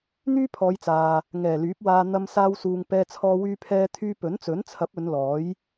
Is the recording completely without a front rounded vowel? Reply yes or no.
no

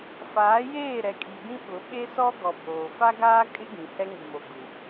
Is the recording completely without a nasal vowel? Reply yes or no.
no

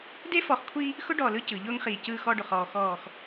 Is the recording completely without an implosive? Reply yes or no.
yes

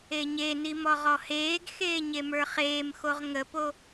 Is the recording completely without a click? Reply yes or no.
yes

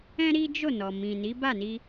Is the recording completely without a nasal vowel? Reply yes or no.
no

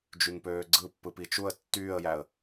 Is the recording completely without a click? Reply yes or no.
no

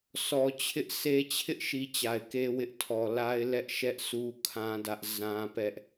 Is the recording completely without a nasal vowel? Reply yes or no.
no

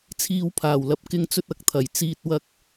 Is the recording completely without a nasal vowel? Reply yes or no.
yes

